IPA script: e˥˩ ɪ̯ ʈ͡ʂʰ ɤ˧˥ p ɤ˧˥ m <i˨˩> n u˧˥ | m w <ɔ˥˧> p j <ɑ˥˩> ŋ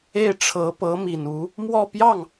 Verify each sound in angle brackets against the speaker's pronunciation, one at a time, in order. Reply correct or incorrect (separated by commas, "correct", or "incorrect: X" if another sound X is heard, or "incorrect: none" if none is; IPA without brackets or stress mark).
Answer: correct, correct, correct